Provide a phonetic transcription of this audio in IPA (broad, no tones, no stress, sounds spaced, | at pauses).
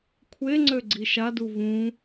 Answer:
kʷʰ e ŋ͡ǀ ø ɡ͡ǀ i ʃ a d u v ũ